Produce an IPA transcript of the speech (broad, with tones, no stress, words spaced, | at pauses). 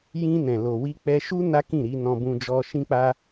jĩ˧nɛ̃˨ lo˨wi˧k͡pɛ˧ʃu˦ na˦kĩ˦˨ɾi˧ nɔ̃˧bũ˧d͡ʒɔ˧ ʃĩ˦k͡pa˦